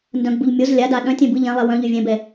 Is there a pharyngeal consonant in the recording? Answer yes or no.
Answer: no